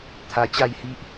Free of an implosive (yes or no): yes